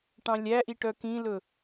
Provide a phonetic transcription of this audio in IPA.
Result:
ʈ ɑ̃ lʲ æ ʔ i ʈ œ k ĩ l ɵ

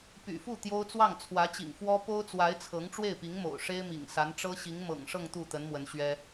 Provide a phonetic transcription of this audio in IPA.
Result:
p y̰˨˩ f u˥˩ t̪ j o˥ ʊ̯ t͡s w ɑ˥˩ ŋ t͡sʰ w ä˧˥ t͡ɕ ḭ˨˩ ŋ f w ɔ˥ p o˥ ʊ̯ t͡s w a˧˥ ɪ̯ t͡sʰ ɤ˧˥ ŋ ʈ͡ʂ w e˥˩ ɪ̯ p i˧˥ ŋ m o̰˨˩ ʊ̯ ʂ e˥ ɪ̯ m ḭ˨˩ ŋ s a˧˥ n ʈ͡ʂ ɤ˥ ɕ i˧˥ ŋ m ɤ̰˨˩ ŋ ʂ ɤ˥˧ ŋ t̪ u˥˩ t̪ ə˧˥ n m w ə˧˥ n ɕ ɥ ɛ˥

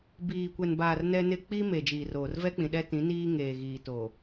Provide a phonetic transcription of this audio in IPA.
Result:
b iː˨ kʷ ɛ˨ n b aː˨ r n ɛ˦ n ɪ˦ k͡p i˦ m e˨ d͡ʒ iː˨ r oː˨ r v ɛ˦ k͡p ĩ˨ ɗ ɛ˦ t ĩ˨˦ n iː˦ ŋ eː˨ ɣ iː˨ t oː˨

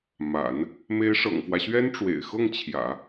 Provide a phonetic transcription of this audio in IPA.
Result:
m a̰˨˩˦ n | m e˧˥ ɪ̯ ʂ ɤ̰˨˩ ŋ f w ä˦ ɕ ɥ ɛ˥ n ʈ͡ʂ w ḛ˨˩ ɪ̯ x ɤ˥˩ ŋ t͡ɕʰ j ä̰˨˩˦

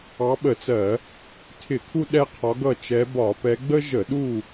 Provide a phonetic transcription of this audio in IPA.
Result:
ɑ˨˦ ɓ ə˧˩˧ t͡s ɜ˧˩˧ | tʰ ɪ˧˩˧ kʰ u˦ ɗ ɛ˦ qʰ ɒ˨˦ ɡ ʌ˦˨ t͡ʃ ɛ˨˦ b ɒ˧˩˧ p ɛ˨˦ ɡ͡b ə˦ ʒ ə˧˩˧ ɗ u˦˨

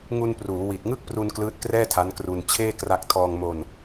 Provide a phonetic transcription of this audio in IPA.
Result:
ŋ u˧ n p r uː˩˦ w i˨˩ t̚ ŋ ɯ˥˩ k̚ p r u˧ n k l ɯː˦˥ t̚ k r ɛː˥˩ tʰ a˦˥ n k r u˧ n t͡ɕʰ eː˥˩ k r a˦˥ k̚ tʰ ɔː˧ ŋ m o˧ n

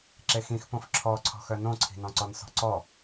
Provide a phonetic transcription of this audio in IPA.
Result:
ǁ e x ĩ x p õ f ǁʰ ɔ ǀʰ ɔ̤ x œ n õ ǀʰ i̤ n ɔ̃ ǀ ɔ n s ɔ̤ ǀ ɔ

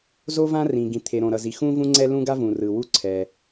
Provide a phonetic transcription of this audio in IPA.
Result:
z o˥ v ã˥ r ĩ˩ ɡ ĩ˩ t̪ʰ e˩ ɾ õ˩ ɾ ʌ˩ z i˩ x ũ˥ v ũ˥ ŋ͡ǀ ɛ˥ l ũ˥ ɡ a˥ v ũ˩ r ɯ˩ w u˥ ǀʰ ɛ˩

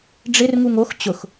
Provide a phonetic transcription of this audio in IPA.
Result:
ɖ͡ʐ ɪ r ŋ u ŋ o x t͡ɕ ʊ x

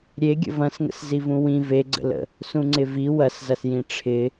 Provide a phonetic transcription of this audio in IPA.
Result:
ɾʲ e ɡʲ ə̰ v ɐ̃ s ŋ ə̰ s z i v ũ w ĩ v e ɡ͡ǀ ə̰ l ə̰ | s ũ ŋ͡ǀ ɪ v i w ɐ s z ɐ s j ĩ ʈ͡ʂʰ ɪ

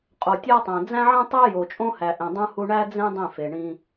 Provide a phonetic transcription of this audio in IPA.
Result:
qʼ o˨ tʲ æ˦ tˤ æ̃˨ d͡z æ̃˦ ʕ ẽ˦ tˤ æ˦ j o˨ t͡ʃʼ õ˦ h æ˨ ʔ ẽ˨ dˤ ũ˦ h u˦ ɳ æ˦ d͡z ẽ˦ dˤ ẽ˦˨ f e˨ ɳ ĩ˦

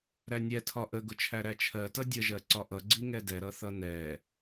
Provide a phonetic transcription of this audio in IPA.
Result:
ɾ æ nʲ ɛ tʰ ɒ ʔ ə ɡ ʊ t͡ʃʰ æ ɾ æ t͡ʃʰ ɜ t ʌ dʲ ə ʒ ɜ ǀ ɒ ʔ ʌ ɡ͡ǀ i ŋ ɛ d ɛ ɾ ʌ θ ʌ n ɛ

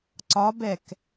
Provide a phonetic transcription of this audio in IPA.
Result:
ǀ ɒ b ɛ k

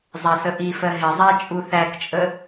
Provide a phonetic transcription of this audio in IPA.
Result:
zˤ æ s ə ʔ i f ɜ ɦ ɪ zˤ æ t͡ʃʼ u θ æ k t͡ʃʼ ə

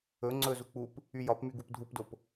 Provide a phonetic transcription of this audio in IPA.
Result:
ɵ ŋ͡ǀ ɵ z u k͡p u p | y j ɒ p m y ɡ u p dʱ u p d o p

